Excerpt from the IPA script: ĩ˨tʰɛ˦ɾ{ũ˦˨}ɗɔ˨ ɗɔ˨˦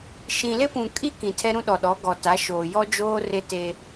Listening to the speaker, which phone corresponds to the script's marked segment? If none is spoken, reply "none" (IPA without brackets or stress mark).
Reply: ũ˦